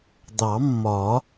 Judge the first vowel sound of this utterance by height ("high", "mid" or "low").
low